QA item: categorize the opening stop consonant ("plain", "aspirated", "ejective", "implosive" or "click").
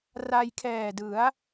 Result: aspirated